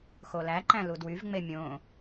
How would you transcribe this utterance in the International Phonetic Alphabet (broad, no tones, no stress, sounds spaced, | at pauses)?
x o l æ ǃ æ̃ l u d w y v ŋ͡m e mʲ õ